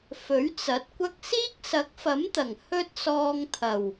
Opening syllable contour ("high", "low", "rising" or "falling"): rising